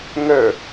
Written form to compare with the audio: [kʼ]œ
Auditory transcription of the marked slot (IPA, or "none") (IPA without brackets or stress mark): ŋ